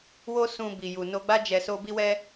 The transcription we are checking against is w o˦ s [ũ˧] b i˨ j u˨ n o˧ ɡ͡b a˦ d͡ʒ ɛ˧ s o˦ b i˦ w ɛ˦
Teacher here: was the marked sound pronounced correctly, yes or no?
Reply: yes